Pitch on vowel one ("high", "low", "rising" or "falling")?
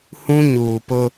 high